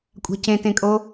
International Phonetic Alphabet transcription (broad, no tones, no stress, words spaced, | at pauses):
kʷʼa̤cẽtẽkʼo